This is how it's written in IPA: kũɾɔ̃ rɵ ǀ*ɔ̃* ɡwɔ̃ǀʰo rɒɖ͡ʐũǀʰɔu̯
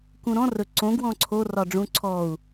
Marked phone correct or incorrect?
incorrect